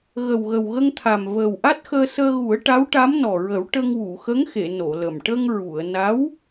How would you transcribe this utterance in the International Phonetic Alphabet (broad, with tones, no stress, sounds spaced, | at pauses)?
ɣ ə˨˩ w ɣ ə˨˩ w ɣ ə˧ ŋ t̪ʰ a˨˩ m v əː˨˩ w ʔ a˦˥ t̚ x əː˧ s əː˧ ɣ u˨˩˦ ə̯ ʈ a˧˥ w ʈ a˧˥ m n ɔ˨˩ ɹ ə˨˩˦ w ʈ ə˧ ŋ w u˨˩˨ x ə˧˥ ŋ x e˨˩˨ n o˨˩˨ l ə˨˩ m ʈ ə˧ ŋ ɹ u˨˩˨ ə̯ n a˧˥ w